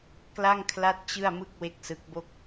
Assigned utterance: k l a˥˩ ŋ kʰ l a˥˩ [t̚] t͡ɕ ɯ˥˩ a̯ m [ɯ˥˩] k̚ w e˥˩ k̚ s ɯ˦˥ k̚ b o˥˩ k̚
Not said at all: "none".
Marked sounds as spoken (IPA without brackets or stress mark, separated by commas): t̚, ɯ˥˩